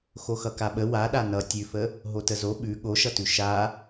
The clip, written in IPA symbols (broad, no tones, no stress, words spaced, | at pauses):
xoxʌkaɓə waɗa nʌ tʲʉfə | ɦotəzo ɓʉ ɠoʃʌtʉ ʃa